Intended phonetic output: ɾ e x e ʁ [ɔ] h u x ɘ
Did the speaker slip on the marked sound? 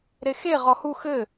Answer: no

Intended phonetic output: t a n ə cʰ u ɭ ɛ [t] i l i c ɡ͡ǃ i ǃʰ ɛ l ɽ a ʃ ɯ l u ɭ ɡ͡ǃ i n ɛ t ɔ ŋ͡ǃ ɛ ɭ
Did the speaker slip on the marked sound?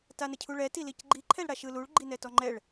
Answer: no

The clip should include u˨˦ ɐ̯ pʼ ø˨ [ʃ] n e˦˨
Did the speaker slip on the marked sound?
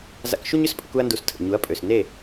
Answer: yes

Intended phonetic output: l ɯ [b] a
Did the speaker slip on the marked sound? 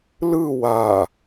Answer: yes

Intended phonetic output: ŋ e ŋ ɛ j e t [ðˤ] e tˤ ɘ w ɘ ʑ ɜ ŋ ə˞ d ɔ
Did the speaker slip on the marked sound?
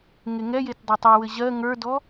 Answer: yes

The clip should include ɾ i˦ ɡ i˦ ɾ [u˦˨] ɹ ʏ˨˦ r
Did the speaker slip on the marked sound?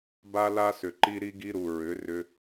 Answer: yes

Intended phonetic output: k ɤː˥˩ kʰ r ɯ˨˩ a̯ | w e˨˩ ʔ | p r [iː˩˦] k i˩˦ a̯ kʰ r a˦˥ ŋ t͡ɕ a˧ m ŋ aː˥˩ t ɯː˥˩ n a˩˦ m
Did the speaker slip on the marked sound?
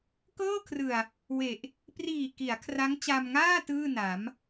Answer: yes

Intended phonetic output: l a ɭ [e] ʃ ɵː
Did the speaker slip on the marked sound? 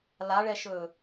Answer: yes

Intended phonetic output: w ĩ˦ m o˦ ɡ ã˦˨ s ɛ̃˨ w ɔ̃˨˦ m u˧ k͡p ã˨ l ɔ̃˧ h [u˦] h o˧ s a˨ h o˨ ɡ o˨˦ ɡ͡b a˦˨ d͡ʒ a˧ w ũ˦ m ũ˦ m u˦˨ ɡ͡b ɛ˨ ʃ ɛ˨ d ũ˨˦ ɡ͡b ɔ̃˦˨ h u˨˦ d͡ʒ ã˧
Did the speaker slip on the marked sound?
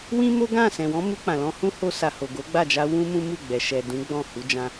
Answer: yes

